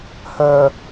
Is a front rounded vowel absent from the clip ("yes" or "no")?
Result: no